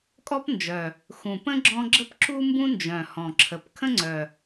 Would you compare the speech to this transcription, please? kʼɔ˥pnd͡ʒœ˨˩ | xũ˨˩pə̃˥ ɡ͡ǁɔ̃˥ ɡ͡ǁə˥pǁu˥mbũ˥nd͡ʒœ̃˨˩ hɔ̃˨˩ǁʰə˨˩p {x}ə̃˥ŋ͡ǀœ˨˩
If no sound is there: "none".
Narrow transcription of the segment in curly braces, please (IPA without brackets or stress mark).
kʰ